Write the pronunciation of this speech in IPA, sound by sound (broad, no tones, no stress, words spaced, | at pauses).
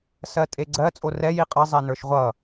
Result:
sɜtʼeɡ͡ǀɜ t͡sʼorɛ jiqʼʌ zˤɛnə˞ʃʁʷʌ